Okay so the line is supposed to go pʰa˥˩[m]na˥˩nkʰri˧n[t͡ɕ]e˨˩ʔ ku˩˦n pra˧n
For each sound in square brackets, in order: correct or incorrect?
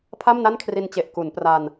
correct, correct

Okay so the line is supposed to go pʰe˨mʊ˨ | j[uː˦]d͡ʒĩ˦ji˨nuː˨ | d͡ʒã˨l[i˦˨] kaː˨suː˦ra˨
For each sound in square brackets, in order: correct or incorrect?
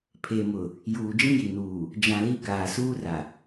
incorrect: uː˨, incorrect: i˦

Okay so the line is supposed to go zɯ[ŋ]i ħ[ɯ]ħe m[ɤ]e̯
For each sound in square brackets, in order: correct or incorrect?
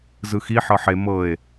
incorrect: x, incorrect: ɤ, correct

